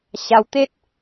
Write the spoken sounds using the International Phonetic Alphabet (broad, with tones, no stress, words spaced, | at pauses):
ɕa˧wt̪e˦t̚